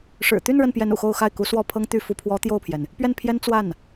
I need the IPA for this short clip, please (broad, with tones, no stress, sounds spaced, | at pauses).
ʂ ɻ̩˨˩ t̪ y˥˧ n ɻ ə˥˩ n p j ɛ˧˥ n ṵ˨˩ x o˥˧ ʊ̯ x a˥˩ ɪ̯ k u˧˥ s w ɔ˥˩ pʰ ɤ˥ ŋ t̪ y˥˩ f u˧˥ pʰ w ɔ˧˥ t̪ j o˥˩ ʊ̯ pʰ j ɛ˩ n | p ɥ ɛ˥˩ n pʰ j ɛ˥ n t͡s w a˥˩ n